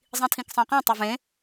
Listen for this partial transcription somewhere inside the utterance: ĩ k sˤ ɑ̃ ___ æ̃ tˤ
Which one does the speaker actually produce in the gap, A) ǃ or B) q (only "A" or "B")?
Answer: B